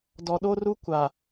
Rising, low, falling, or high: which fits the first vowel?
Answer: low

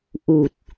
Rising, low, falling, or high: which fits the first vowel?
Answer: low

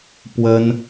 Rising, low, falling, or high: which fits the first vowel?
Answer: high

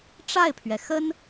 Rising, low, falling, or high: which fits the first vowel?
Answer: falling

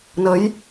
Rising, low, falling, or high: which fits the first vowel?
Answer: rising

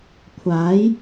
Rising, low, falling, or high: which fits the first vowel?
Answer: rising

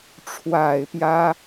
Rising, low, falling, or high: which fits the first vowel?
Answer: low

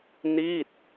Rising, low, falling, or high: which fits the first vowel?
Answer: falling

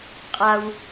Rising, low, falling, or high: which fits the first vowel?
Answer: low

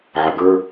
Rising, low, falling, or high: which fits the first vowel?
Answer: low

